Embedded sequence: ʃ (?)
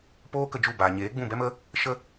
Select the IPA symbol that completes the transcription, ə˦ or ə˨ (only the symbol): ə˦